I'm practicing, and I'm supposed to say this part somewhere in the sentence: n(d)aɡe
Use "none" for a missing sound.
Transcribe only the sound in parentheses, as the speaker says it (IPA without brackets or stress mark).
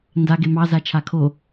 d